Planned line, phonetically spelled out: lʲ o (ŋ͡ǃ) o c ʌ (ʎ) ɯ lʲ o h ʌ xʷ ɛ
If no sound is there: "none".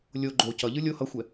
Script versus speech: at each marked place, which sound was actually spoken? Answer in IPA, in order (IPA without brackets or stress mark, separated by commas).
ɡ͡ǃ, ʎ